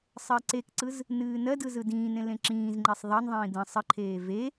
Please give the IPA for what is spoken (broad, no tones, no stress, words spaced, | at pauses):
sˤɜǀekǀɯz | nɨːnɜdɯ zɯdĩːnẽ lẽǁĩːzŋ͡ǃesˤ ðˤɜnðˤĩː də̃ sˤəǃʰeː ve